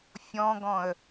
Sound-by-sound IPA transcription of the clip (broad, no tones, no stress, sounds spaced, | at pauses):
fʲ ɔ̃ ɡ ɔ̃ ə̯